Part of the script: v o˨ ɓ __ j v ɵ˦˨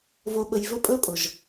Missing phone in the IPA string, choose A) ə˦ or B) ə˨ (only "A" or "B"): B